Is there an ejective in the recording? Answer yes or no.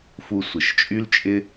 yes